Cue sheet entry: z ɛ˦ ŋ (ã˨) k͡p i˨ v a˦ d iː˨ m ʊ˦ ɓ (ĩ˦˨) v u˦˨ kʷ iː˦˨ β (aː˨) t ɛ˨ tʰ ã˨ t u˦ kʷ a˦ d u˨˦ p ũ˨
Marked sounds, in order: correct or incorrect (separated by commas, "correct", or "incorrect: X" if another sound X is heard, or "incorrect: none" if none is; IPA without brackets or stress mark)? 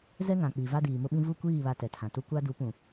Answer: correct, incorrect: ĩ˦, incorrect: a˨